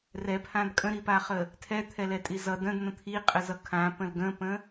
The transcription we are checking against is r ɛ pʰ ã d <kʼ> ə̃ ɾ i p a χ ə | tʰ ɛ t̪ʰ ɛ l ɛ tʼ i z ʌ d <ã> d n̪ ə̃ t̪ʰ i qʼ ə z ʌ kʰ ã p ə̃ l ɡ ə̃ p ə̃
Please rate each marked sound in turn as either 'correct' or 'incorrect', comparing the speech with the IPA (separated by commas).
correct, incorrect